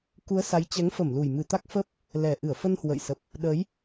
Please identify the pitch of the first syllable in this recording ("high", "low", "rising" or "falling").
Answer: rising